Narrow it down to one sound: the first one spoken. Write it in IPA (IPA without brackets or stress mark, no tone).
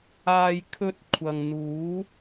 aː